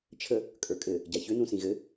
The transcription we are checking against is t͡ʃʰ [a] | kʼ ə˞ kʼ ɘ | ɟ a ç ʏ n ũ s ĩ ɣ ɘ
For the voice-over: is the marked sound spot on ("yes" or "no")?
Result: no